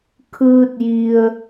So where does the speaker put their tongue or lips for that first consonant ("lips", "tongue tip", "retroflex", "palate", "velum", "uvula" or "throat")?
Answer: velum